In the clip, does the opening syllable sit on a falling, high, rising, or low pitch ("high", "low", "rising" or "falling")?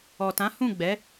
low